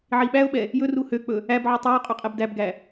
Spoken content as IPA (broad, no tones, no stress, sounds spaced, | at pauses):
ʕ i ɓ æ ʊ̯ ɓ ɛ | j ɵ r u h ø k͡p ɵ | æ b ʕ u tˤ ɛ ʊ̯ qʼ ɵ qʼ ɛ b d æ b ɡ æ